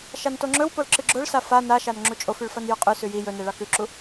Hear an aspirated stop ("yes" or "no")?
no